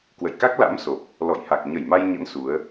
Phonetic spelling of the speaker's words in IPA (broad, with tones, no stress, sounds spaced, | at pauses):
k w ə̰˧˨ j k a˦˥ k̚ l a̰˧˥ m s o˨˩ p̚ | l ɔ̰˧˨ j h a˨˩ k̚ ɲ ə˧˩ j m a˧ j ɲ ə̰˧˥ n s u˨˦ ə̯